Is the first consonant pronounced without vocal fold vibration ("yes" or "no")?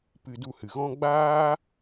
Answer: yes